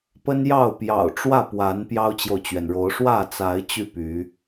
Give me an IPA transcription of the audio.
p ə˦ n j ɑ˥˨ ʊ̯ p j ɑ̰˨˩ ʊ̯ ʈ͡ʂ w ä˥˨ p w a˨˦ n p j ɑ˦ ʊ̯ t͡ɕ j o˨ ʊ̯ t͡ɕ ɥ ɛ˩ n ɻ o˨˦ ʊ̯ ʂ w ä˥˨ t͡s a˨˦ ɪ̯ t͡ɕ y˥˨ p y˨˦

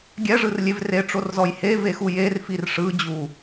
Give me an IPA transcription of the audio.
ɡʲ ɛ ʐ ɯ r lʲ e v r e ʈ͡ʂ o r z ɔ j h e v e x u j e r f i r ʂ ɯ d͡ʑ u

